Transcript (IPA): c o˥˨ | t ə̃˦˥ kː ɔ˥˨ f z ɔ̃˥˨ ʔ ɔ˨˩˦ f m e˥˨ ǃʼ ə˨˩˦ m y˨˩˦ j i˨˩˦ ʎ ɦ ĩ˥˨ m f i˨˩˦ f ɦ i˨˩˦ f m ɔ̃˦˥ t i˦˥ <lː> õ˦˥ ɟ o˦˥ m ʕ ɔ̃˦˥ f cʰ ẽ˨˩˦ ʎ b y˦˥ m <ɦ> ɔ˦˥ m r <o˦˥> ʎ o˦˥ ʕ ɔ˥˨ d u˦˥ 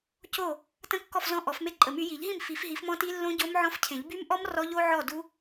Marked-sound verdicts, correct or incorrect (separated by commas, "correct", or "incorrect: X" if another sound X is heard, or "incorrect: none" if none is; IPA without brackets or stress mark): correct, incorrect: ʔ, incorrect: ɔ˦˥